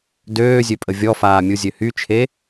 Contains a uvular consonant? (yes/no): no